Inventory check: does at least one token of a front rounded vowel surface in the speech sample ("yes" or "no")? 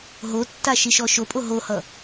no